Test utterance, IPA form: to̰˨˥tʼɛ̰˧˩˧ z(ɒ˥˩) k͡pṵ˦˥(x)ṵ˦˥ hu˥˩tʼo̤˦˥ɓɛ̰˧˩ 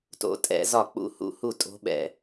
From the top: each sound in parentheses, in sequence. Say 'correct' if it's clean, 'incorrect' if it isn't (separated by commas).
correct, incorrect